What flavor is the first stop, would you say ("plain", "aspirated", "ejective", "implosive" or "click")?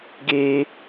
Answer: plain